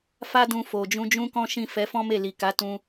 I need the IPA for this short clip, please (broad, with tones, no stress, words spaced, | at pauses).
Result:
fa˦dũ˧ fo˨d͡ʒũ˧d͡ʒũ˦kɔ̃˦ ʃĩ˦˨ fɛ˨˦fɔ̃˦me˦˨ li˨ka˨˦ tũ˧